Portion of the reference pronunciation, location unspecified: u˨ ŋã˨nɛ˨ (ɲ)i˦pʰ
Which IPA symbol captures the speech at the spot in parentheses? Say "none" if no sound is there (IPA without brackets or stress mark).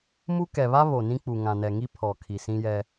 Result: ŋ